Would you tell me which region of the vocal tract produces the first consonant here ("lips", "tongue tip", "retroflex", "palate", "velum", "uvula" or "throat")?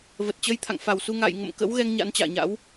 lips